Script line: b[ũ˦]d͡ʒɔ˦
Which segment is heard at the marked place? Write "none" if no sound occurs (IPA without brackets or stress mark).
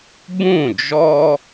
ũ˦˨